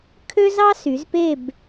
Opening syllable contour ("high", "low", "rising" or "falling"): high